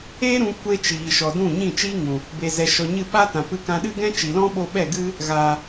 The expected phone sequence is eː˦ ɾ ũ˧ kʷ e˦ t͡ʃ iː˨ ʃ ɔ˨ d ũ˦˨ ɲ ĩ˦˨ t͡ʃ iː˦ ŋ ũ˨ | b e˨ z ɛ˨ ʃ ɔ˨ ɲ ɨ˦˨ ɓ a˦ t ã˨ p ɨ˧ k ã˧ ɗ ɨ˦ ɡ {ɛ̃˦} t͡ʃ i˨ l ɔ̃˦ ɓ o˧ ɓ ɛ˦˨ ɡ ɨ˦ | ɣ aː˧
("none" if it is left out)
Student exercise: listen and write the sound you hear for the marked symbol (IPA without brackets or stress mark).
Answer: ɛ̃˦